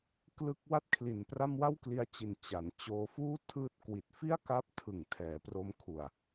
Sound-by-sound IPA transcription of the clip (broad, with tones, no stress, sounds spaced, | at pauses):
k l ɯ˦˥ k̚ w a˥˩ t̚ kʰ l i˨˩ n p r a˥˩ m w a˥˩ w k l i˧ a̯ t͡ɕ i˨˩ n t͡ɕ a˩˦ n t͡ɕ oː˧ f uː˥˩ tʰ ɯː˦˥ t̚ k w i˨˩ t̚ f i˥˩ a̯ k a˦˥ p̚ tʰ ɯ˨˩ ŋ tʰ ɛː˩˦ p r o˧ m kʰ u˨˩ a̯